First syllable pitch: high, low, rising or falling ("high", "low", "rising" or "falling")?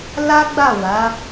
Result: high